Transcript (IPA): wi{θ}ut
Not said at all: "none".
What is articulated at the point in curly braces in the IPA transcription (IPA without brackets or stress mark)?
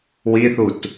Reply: θ